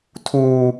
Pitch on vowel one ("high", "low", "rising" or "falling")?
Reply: high